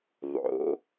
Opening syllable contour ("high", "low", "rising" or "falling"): rising